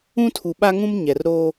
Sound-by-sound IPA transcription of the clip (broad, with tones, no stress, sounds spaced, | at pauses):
ũ˦ tʰ u˨ ɓ a˦ ŋ ũ˦ m ɲ ɛ˨ r ɾ o˦